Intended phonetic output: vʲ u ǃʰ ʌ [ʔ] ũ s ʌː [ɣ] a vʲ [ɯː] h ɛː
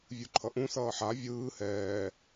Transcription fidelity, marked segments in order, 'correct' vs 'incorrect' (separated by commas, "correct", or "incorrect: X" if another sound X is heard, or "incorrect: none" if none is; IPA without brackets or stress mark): correct, incorrect: ħ, correct